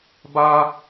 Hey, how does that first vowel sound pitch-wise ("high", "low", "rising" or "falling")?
high